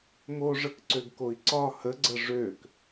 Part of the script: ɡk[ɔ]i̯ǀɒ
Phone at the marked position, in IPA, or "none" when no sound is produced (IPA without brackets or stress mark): o